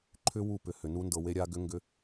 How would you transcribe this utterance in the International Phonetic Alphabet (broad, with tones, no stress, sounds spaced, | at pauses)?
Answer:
ǃʰ ʏ˦ w u˦˨ p ʏ˨ h ʏ˨ n u˦ n d ɤ˧ w e˦ ɾʲ a˦ ɡ ʏ˦ ŋ ɡ ʏ˧